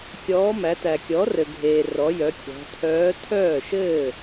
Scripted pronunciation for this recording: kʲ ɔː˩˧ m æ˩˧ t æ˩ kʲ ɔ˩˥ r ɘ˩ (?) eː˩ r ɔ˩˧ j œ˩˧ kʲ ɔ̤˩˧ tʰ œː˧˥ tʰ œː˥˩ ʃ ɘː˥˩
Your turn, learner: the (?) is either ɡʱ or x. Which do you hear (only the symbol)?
ɡʱ